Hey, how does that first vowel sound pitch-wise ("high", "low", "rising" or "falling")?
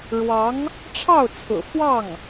rising